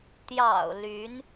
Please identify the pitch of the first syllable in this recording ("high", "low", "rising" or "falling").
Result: low